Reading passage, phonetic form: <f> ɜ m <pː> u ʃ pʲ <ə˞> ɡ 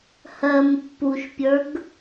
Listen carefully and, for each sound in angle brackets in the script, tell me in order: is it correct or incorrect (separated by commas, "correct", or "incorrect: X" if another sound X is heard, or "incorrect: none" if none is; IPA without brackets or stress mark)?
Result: incorrect: h, correct, correct